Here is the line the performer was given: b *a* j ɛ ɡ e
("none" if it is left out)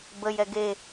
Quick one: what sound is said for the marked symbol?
ə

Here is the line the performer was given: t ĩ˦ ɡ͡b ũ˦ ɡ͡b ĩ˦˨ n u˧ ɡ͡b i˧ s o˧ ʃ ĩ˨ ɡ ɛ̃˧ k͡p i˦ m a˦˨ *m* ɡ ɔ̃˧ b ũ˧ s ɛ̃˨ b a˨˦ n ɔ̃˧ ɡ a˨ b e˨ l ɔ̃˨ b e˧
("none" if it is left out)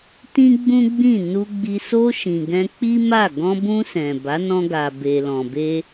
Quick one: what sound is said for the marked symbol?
none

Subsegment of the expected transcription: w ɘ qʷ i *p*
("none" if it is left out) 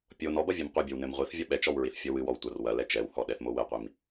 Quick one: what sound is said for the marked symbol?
m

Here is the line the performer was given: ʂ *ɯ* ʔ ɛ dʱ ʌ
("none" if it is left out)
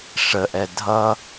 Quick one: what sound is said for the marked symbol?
ə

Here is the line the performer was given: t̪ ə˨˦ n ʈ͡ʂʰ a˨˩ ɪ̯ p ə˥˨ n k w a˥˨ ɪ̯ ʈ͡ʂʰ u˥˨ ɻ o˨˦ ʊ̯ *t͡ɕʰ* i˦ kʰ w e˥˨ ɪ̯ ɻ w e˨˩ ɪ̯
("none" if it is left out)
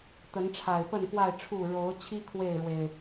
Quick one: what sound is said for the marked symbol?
t͡ɕʰ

